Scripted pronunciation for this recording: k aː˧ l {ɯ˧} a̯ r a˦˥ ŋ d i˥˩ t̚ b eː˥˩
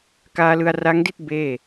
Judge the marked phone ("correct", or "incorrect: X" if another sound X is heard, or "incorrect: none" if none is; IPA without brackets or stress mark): correct